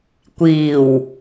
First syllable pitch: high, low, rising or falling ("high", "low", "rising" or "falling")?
low